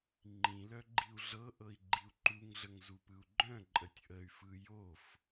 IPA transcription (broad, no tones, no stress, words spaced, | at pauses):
ŋ͡ǃĩlœ ɡ͡ǃiu̯ɮɤʔɤi̯ ɡ͡ǃiu̯ǃuŋɮəŋ zupɯu̯ɡ͡ǃœ̃ǃʼətʲ ʔəy̯fɯ jof